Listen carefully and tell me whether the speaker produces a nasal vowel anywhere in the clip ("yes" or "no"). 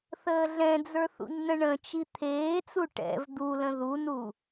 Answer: yes